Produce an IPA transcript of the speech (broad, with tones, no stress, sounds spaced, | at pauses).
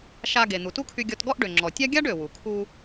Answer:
ʃ a˧ ɡ e˩ n̪ u˩ t u˥ kʰ y˧ ɡʲ ɔ˧ t ɡ ɔ˥ ʔ ɖ ø˩ ŋ͡ǁ ɔ˩ tʲ a˥ ɡʲ a˥ ɖ ø˩ w u˩ kʰ u˧